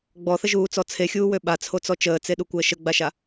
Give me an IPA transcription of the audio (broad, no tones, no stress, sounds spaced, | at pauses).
ɡ͡b ɔ θ ə ʒ uː t͡s ɔ t͡sʰ e xʲ uː w ø ɓ a t͡sʰ o t͡s ɔ t͡ʃ əː t͡s e ɗ u kʷ əː ʃ ə ɡ͡b a ʃ a